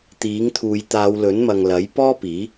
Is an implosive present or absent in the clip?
absent